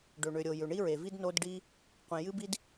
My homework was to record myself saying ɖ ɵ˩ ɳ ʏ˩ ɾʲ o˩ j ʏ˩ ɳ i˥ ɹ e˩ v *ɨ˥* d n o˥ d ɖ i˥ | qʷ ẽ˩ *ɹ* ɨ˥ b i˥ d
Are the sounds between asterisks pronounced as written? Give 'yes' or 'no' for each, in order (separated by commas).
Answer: no, no